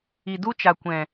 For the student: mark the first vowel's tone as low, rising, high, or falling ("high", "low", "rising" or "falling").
low